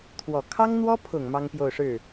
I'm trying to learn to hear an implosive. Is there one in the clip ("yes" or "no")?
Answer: no